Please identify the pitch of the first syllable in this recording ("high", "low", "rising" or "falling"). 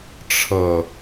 low